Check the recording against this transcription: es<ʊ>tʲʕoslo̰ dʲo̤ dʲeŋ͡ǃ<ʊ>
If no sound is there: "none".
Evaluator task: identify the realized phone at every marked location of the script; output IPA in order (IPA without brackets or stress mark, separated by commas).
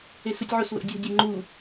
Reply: u, u